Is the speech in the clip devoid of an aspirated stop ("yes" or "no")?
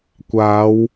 yes